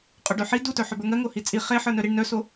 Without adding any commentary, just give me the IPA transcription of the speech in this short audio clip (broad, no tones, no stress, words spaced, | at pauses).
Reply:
qʼoɖœħi dutœ ħœbə˞ŋɜ ŋohit͡sʼi χe ħə˞nœɾiɳ nœso